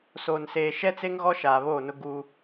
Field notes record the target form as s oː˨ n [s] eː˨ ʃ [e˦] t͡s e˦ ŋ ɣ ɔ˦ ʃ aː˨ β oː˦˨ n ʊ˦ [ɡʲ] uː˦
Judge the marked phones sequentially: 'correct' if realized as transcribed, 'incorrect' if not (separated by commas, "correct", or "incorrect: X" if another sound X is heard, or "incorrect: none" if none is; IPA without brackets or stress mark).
correct, incorrect: ɛ˦, incorrect: ɡ